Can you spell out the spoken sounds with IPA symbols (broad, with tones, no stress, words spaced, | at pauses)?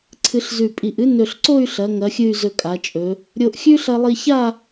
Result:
ǀʰɨ˧ɬzʉ˧˩pʼi˧˩ʔɨ˥ nɵ˧˩ɬǀo˥˧y̯ɬɐ˩˧ ŋɐ˩˧xʲɨ˧˩y̯ zɵ˧kʼa˩˧t͡ʃʼɵ˩˧ | ɾʲo˧ʔxʲʉ˥ ɬɐ˧lˠi˧ça˥˧